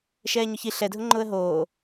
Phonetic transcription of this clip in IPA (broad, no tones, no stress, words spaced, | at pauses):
ʃɛːɲʊçi ɬɛdʱʊŋ͡ǃʊːə̯ ɦoː